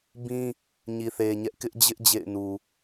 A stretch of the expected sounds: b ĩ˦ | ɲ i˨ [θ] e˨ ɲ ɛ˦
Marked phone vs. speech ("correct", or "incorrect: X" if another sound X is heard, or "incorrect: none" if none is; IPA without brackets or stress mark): correct